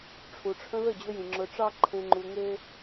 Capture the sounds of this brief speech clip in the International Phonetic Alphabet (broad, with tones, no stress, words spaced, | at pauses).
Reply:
ʈ͡ʂʰu˨ʈ͡ʂʰə̃˧ðə˦˨ d͡ʑɵ˧jĩ˨ ŋ͡ǁɵ˧ʈ͡ʂɑ˦ ǃʰẽ˧ŋ͡ǃu˧ŋe˦